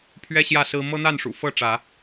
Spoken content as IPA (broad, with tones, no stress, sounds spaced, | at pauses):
pʰ ɥ ɛ˦ ɕ j ä˥˨ s ɹ̩˦ m ɤ˦ n̪ a˥˨ n ʂ ṵ˨˩ f ɤ˥˨ ʈ͡ʂ ä˨˦